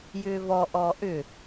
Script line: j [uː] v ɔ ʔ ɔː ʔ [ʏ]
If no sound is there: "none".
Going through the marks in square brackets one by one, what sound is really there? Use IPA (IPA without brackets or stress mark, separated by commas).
ʏː, ʏ